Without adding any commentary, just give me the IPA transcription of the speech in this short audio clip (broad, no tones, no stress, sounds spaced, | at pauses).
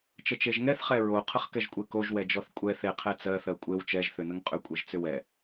t͡ʃ ə t͡ʃ e ʒ ŋ ɛ θ χ ɛ ɹ o qʰ ə χ k ɛ ʒ kʷʼ e k o ʒ w ɛ d͡ʒ ɔ θ kʷʼ ɛ θ e qʰ ɛ t͡s ɜ θ ɜ kʷʼ e w t͡ʃ ɛ ʒ θ ʏ n ə ŋ qʼ ʏ kʷʼ e ʒ t͡s ʏ w ɛ